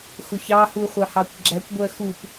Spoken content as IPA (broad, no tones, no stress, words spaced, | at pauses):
xʊçɑ huχʷɑhɑkʷɡ͡ǁækʷ ɡʷɜxup